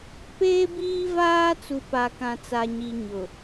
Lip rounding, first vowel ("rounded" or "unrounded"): unrounded